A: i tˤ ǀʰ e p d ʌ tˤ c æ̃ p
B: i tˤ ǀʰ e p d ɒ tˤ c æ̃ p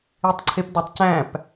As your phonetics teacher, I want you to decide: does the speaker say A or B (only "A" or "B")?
B